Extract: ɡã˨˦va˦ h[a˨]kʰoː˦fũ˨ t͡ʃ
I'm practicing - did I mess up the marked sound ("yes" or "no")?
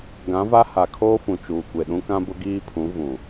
no